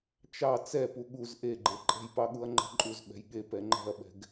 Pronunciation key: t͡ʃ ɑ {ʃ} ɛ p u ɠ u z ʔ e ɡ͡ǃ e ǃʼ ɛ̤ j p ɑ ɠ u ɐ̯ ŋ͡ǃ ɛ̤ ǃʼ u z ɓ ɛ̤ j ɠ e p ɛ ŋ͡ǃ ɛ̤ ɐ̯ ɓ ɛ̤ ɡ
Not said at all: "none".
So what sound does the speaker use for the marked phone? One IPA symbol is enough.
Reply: t͡s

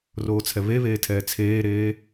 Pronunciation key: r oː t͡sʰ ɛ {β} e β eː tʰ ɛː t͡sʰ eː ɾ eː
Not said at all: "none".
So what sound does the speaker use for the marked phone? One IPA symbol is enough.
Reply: β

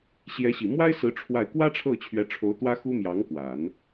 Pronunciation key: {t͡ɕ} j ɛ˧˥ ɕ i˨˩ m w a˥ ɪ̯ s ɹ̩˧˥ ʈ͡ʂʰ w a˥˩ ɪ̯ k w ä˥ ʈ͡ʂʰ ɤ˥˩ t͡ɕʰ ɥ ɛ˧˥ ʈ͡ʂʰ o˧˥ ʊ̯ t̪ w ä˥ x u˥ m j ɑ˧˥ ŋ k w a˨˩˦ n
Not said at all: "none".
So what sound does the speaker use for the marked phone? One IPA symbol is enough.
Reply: ɕ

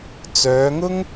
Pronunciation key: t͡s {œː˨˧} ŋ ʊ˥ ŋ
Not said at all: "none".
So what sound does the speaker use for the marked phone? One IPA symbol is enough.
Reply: œː˨˧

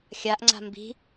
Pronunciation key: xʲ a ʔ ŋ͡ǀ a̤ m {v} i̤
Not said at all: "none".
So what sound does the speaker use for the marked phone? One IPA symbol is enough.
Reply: b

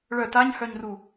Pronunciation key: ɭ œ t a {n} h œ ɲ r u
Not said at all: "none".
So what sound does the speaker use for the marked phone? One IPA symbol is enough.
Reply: ɲ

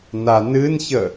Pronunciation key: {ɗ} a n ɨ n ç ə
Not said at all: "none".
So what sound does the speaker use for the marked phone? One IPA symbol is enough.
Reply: n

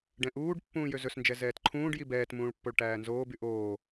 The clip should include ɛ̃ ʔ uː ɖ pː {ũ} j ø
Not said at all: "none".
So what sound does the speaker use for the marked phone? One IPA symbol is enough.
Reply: ũː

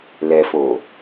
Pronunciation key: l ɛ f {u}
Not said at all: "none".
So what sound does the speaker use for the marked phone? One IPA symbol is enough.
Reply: o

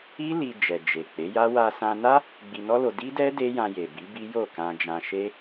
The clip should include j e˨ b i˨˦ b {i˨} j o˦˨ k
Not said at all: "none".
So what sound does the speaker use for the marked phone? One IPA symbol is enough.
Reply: i˦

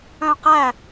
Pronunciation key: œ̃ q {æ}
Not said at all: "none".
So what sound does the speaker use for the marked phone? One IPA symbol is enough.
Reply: æ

